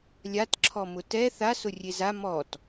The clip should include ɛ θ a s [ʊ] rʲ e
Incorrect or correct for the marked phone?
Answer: correct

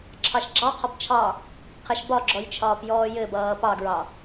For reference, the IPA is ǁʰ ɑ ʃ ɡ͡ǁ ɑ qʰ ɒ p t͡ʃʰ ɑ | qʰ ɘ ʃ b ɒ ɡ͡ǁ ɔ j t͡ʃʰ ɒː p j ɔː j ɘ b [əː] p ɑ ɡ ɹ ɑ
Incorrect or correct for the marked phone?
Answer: incorrect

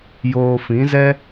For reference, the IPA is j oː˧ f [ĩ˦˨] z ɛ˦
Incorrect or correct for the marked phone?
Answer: incorrect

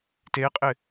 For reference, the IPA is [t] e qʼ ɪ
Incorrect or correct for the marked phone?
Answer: correct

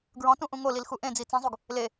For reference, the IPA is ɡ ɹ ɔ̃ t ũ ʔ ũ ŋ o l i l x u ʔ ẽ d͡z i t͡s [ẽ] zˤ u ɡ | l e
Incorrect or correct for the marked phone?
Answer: correct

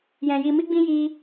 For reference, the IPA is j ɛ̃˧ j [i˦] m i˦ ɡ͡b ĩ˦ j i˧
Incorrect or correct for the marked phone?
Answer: incorrect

